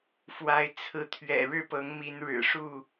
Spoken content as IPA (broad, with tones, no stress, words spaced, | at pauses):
fwa˨˦ɪ̯ t͡sʰɹ̩˨˦t̪ʰɥɛ̰˨˩ ɻɻ̩˥˨pɤ˨˦ŋ mi˨˦nɻɻ̩˨˩ʂu˥˨